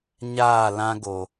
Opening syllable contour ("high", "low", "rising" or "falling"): falling